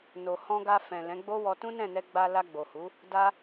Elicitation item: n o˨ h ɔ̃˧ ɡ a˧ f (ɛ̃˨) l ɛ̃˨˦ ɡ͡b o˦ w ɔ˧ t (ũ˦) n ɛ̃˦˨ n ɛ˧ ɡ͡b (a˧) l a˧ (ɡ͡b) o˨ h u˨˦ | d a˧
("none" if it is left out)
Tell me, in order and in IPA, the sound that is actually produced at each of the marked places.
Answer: ɛ̃˨, ũ˦, a˧, ɡ͡b

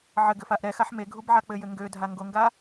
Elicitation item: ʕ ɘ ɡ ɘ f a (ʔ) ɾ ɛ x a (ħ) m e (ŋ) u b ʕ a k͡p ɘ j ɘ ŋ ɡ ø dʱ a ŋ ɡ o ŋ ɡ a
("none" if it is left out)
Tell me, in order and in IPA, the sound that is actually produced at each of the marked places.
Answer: ʔ, ħ, ɡʱ

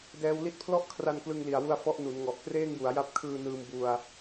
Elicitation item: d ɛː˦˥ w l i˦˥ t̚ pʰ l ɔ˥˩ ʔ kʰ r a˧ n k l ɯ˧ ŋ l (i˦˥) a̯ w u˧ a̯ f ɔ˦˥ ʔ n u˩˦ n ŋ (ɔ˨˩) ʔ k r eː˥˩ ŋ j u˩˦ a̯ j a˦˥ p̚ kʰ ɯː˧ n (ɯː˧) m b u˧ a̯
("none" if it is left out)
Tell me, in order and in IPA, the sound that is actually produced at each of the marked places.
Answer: i˨˩, ɔ˨˩, ɯː˧

